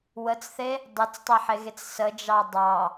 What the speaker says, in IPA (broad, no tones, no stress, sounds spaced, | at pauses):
w ə t͡s θ e | dˤ e t͡s tˤ e ħ e ɣ e t͡s s ə d͡ʒ ɑ dˤ ɑ